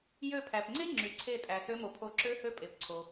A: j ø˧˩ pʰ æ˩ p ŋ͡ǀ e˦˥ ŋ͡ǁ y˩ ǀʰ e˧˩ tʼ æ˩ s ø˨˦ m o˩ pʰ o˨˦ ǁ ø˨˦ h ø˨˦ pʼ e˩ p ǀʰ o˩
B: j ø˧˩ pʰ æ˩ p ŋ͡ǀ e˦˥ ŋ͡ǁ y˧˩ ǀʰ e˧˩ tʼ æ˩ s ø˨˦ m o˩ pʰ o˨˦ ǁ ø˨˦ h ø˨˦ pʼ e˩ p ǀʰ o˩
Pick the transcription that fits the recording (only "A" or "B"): A